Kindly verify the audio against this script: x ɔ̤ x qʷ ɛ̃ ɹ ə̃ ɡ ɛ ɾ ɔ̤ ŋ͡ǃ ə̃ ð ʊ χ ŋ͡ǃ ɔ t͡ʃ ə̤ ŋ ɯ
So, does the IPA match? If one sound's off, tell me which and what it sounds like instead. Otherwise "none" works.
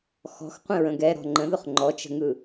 none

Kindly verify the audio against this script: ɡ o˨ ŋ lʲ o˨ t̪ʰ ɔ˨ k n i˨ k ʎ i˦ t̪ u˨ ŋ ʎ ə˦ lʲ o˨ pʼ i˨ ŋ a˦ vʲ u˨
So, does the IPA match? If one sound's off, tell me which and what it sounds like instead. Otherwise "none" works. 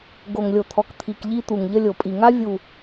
n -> t̪ʰ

